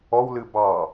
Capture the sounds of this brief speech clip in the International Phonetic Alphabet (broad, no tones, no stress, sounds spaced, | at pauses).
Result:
ɔ w l ɨ b ɑ